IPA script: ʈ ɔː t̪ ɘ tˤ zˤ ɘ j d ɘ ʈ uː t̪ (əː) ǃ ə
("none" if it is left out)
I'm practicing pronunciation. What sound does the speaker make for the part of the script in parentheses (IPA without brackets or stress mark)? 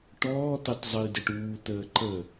əː